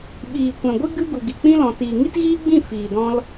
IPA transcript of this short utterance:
ɓ iː˨ kʷ ɛ̃˨ ɡʷ ɨ˦ ɡ ɨ˦ ɡ u˨ ɡ i˨ k͡p ĩ˦ l ɔ̃˨ t iː˨ ŋ i˦ t ɣ iː˦ ɡ͡b ĩ˦˨ f iː˨ d ɔ̃˧ l

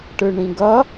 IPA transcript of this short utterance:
ʈ ɯ ɳ ĩ ɡ ʌ

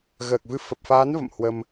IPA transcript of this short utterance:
ɣ əː˨˩ k̚ v ɨ˧ f ə˨˩ p̚ f aː˨˦ n v ə̰˧˨ m h w ə˧ m

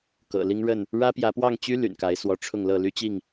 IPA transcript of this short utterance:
k ɤ̰˨˩ l i˦ ŋ ɻ ə˥˨ n | ɻ ä˦ p j ä˨˦ p w ɑ˥˨ ŋ t͡ɕ y˦ l y̰˨˩ n k a˨˦ ɪ̯ s w ɔ˨˦ ʈ͡ʂʰ ʊ˥˨ ŋ l ɤ˥˨ l y˦ t͡ɕ i˥˨ ŋ

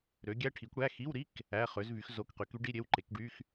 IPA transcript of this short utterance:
ɾ ø˨˥ ɡʲ æ˧˥˧ ʈʰ i˨˥ kʷ ɽ æ˧˥˧ x i˧˥˧ w ɾ i˧˥˧ k | æ˧˥˧ χ ø˨˥ z v y˨˥ x z o˧˥˧ k q y˨˥ k y˨˥ ɖ i˧˥˧ ɾʲ e˧˥˧ w ǃ e˨˥ k ɖ y˧˥˧ x

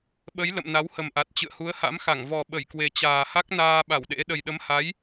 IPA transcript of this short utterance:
ɓ ə˨˦ j l ə̰˧˨ m n a˨˦ w h ə˨˩ m ʔ a˨˩ t̚ t͡ɕ ɨ̰˧˨ ə̯ h u˨˦ ə̯ h a̰˧˥ m x a˧˩ ŋ v ɔ˨˩ ɓ ə˧˩ j k w e˨˩ t͡ɕ aː˨˩ h a˦˥ k̚ n aː˧ ɓ a˧˩ w ɗ ḛ˧˥ ɗ ə˨˩ j ɗ ə˨˦ m h a˨˦ j

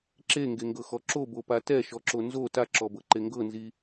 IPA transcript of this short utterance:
ǁ e ŋ ɡ e ŋ ɡ ɤ x ɔ ǁ o b o p a t ɛ ʃ ɔ ǁ o n z o t a ǁ ɔ b ɤ ǃ e ŋ ɡ ɤ n z i

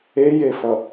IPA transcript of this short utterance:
e j e f ʌ

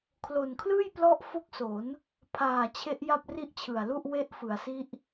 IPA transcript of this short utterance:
kʰ l o˨˩ n kʰ l ɯː˥˩ j p l ɔ˦˥ ʔ f o˥˩ k̚ s o˩˦ n | pʰ aː˨˩ t͡ɕʰ e˦˥ ʔ j a˥˩ p̚ r i˦˥ ʔ t͡ɕʰ ɯ˨˩ a̯ l u˥˩ ʔ w e˦˥ ʔ f ɯ˩˦ a̯ s i˦˥ ʔ

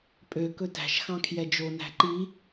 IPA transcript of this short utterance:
pʼ ø k ɵ t æ̤ ʃ x ɑ̃ kʰ j ɛ d͡ʒ o n æ̤ ǃ i

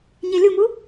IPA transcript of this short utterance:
ɲ e lʲ u m u

